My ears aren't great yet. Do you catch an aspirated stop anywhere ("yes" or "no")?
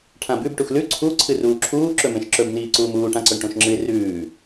yes